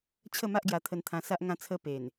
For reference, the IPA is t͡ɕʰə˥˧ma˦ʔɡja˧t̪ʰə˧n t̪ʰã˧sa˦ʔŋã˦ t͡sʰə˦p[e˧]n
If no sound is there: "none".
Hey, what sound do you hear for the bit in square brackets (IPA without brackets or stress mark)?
e˨˩